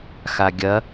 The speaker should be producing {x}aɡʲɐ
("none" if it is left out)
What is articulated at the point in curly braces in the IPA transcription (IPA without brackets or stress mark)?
x